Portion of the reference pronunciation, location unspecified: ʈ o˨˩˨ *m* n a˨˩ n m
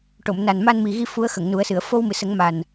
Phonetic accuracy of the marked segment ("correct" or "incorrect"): correct